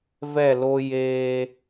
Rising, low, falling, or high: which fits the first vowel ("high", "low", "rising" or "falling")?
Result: falling